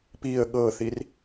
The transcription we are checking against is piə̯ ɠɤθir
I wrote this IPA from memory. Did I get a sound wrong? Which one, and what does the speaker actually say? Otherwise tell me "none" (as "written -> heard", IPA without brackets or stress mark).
none